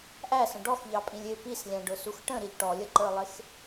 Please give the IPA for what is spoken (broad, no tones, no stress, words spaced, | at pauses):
ʔæsə̃ ɖɔxʎɑpʼĩlʲ ɪ pislʲæ̃ɖʊsux ʈə̃ɾiʎ ʈɔlʲʌǃə˞lˠɪx